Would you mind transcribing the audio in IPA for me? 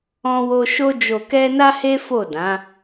ɔ̃˦ w o˦ ʃ o˦ d͡ʒ o˧ k ɛ˦ n a˦ h e˦ f o˦˨ d ã˨˦

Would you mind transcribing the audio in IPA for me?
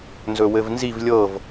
n z ɵ w ɘ v n z i v lʲ ɤ v

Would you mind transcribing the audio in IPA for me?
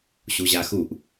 ɕ u ʑ a x u ʔ

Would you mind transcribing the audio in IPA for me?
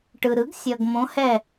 ʈ ɯ˨ ɾ ɯ˩˥ ɡ sʲ ʌ˨ ɡ m õ˧˥ h ɛ˥˧

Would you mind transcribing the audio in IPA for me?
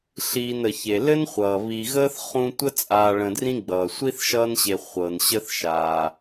ɬ iː˨ n ə˩ ç e˩ l ɘ˥ n χʷ ʌː˩ β i˨ ɣ əː˥ θ χ ũ˦ tʷ ə˥ t͡sʼ aː˨ ɭ ə̃˨ d r ĩ˦ ɡ͡b ʌː˩ sʷ i˥ θ ʃ ʌː˦ n ɕ e˨ χʷ ɤ˩ n ɕ ə˦ θ ʃ aː˩

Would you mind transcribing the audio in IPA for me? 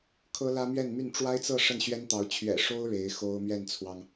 kʰ ɤ˥ l ä˥ m ɥ ɛ˥˧ n m y˥˩ n ʈ͡ʂ w a˥ ɪ̯ t͡s ɤ˥˧ ʂ ə˥˩ n ɕ ɥ ɛ˥ n t̪ ɑ˧˥ ʊ̯ t͡ɕʰ ɥ ɛ̰˨˩ ʂ o˥ ʊ̯ ɻ e˧˥ ɪ̯ x o˥ ʊ̯ m ɥ ɛ˥˩ n t͡sʰ w ɑ˩ ŋ

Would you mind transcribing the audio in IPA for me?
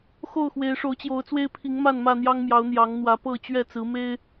x o˥˨ ʊ̯ x w e˨˦ ɪ̯ ʂ o˨˦ ʊ̯ t͡ɕ j o˨˦ ʊ̯ t͡s w e˦ ɪ̯ pʰ i˨˦ ŋ m a˥˨ n m ä˥˨ n̪ j ɑ˦ ŋ m j ɑ˨˦ ʊ̯ n̪ j ɑ˨˦ ŋ n̪ w ä˨˦ p ɤ˥˨ t͡ɕ ɥ ɛ˥˨ t͡s ɹ̩˨˦ m e˦ ɪ̯

